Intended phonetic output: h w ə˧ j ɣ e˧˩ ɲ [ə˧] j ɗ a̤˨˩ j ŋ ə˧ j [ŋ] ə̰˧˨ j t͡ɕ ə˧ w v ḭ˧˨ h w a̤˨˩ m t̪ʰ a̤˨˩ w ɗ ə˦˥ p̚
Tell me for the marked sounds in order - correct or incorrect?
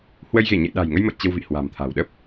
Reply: incorrect: ə̰˧˨, incorrect: m

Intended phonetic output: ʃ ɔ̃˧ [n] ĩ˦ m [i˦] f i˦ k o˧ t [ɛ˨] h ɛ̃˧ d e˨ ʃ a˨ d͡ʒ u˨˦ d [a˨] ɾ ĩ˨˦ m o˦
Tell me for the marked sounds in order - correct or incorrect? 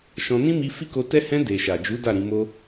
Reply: correct, incorrect: i˧, incorrect: ɛ˦, incorrect: a˦˨

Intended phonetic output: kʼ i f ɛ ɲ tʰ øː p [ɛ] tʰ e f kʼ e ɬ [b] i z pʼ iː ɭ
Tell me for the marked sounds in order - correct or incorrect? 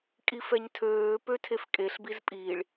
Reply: incorrect: ø, correct

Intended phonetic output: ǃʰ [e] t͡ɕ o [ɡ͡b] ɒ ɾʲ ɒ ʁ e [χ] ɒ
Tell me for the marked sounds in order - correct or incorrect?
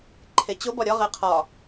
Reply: correct, incorrect: b, incorrect: qʰ

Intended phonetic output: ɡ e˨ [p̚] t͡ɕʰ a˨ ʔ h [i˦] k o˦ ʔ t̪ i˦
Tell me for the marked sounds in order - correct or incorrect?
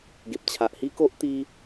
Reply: correct, correct

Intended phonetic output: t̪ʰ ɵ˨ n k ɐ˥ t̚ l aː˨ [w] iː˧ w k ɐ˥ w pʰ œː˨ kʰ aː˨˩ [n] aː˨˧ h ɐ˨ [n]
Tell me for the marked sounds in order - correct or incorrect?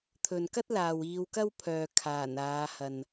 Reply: correct, correct, correct

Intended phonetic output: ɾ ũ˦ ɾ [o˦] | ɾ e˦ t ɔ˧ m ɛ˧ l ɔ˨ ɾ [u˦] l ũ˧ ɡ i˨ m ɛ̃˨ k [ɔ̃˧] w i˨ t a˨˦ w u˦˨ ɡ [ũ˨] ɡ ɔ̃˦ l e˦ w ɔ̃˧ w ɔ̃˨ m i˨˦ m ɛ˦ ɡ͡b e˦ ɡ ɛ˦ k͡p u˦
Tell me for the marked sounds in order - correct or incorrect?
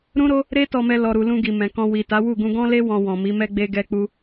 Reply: correct, incorrect: u˨, correct, incorrect: ũ˧

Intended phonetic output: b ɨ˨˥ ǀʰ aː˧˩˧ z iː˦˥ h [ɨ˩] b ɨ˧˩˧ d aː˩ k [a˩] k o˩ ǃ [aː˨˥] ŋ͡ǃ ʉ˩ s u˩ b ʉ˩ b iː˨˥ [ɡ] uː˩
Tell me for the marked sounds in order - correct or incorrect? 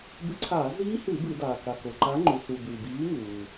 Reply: incorrect: ɨ˧˩˧, correct, incorrect: a˨˥, incorrect: ŋ

